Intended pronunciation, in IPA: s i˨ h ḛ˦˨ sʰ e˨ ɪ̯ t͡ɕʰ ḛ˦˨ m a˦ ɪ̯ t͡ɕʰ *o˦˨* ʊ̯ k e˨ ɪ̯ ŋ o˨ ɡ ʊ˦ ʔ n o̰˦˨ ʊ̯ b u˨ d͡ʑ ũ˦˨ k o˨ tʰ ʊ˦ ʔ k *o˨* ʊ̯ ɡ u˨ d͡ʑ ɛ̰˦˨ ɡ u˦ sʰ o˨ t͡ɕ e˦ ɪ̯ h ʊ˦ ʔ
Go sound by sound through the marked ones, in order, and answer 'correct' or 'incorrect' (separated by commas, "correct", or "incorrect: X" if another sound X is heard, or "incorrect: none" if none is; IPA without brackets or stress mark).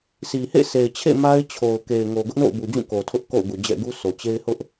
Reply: incorrect: o˨, incorrect: o̰˦˨